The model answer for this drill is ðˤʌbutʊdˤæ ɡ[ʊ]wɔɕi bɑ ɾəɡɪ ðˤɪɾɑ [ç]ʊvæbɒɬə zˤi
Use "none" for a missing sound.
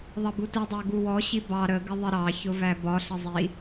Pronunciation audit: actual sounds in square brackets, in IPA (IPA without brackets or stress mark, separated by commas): u, ç